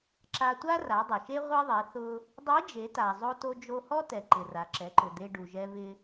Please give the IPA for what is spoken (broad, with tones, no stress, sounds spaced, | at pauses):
ǁ a˧ tʷ a˥ r a˩˧ dˤ ɪ˩ ʃ e˥ ʁʷ e˥ ðˤ e˩˧ θ ʊ˧ | dˤ i˧˥ d͡ʒ e˩˧ t a˩ zˤ o˧ t o˧ d͡ʒ o˧ h ɔ˥ t ɛ˩ ǃ ɪ˩ r a˩ ǁ ɛ˩˧ ǃ ʊ˩ d̪ e˧ ɖ u˩ ʒ ɛ˧ v ɪ˧